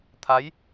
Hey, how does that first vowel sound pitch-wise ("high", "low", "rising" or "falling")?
rising